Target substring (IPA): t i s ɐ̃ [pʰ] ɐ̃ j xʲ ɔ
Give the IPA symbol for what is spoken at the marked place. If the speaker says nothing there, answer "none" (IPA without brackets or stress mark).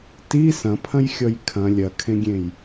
pʰ